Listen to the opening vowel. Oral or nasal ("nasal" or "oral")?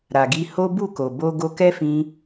oral